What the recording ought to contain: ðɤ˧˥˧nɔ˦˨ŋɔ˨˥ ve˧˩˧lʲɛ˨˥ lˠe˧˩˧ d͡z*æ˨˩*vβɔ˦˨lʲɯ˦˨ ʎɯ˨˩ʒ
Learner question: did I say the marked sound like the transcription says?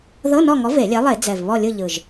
no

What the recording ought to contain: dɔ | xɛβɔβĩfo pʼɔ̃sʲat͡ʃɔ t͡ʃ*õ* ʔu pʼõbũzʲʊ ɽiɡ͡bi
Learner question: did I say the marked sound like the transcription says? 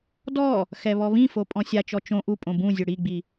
yes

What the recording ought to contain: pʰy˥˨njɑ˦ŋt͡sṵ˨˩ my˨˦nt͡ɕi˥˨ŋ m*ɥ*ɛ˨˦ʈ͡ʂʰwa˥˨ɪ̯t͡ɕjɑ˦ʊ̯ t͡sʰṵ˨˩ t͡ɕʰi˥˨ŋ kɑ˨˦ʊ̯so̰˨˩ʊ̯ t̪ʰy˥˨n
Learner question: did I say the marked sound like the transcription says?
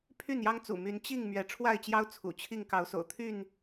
yes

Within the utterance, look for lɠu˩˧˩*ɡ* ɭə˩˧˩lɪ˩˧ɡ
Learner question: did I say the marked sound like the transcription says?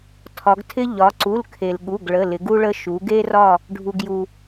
yes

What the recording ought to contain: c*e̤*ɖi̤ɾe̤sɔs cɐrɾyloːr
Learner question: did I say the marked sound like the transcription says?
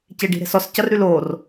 no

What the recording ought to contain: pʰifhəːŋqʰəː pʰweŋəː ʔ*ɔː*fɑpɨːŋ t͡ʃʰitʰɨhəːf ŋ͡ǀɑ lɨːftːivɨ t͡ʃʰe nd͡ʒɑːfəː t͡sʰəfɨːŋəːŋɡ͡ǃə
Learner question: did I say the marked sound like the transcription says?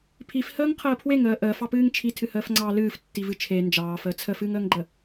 no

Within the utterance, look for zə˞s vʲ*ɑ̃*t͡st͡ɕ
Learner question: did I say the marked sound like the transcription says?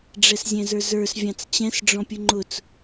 yes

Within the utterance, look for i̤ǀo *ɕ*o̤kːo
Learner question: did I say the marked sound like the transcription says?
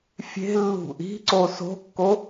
no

